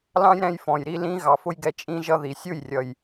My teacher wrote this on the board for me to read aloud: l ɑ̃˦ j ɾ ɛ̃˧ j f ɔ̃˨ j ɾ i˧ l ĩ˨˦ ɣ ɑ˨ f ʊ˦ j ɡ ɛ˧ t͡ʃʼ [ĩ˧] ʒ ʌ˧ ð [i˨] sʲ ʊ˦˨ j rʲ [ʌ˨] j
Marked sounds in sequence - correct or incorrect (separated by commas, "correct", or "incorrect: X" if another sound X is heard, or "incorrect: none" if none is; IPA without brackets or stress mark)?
correct, correct, correct